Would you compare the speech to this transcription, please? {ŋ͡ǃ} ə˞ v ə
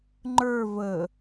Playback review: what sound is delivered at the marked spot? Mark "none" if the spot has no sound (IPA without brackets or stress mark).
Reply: ŋ͡ǃ